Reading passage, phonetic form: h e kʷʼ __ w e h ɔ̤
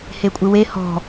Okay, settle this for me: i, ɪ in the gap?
ɪ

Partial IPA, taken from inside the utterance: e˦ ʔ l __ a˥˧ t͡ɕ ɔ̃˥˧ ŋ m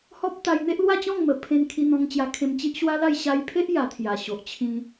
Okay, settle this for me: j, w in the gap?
w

